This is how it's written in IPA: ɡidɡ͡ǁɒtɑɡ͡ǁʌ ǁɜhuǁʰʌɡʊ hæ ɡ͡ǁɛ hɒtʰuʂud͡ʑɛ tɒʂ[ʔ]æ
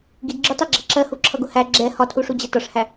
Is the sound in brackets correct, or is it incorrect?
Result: incorrect